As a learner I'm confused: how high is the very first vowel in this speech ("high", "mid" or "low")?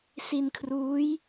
high